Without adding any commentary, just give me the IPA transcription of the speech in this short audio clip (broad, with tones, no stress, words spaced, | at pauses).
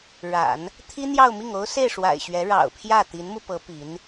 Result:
ɻa̰˨˩˦n | t̪ʰi˥n̪jɑ˥˧ʊ̯mi˥˩ŋo˥ʊ̯ se˥˩ɪ̯ʂwa̰˨˩ɪ̯ɕɥɛ˧˥ ɻɑ̰˨˩ʊ̯pʰjä˥˩ t̪i˧˥nmu˧pɤ˧˥ pi˧˥n